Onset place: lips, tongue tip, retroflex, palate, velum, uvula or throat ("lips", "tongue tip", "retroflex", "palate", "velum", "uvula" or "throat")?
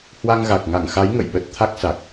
throat